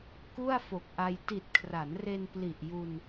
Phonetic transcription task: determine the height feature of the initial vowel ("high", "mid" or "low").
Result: high